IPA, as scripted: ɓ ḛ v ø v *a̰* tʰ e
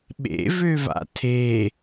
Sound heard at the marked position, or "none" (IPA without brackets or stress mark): a̰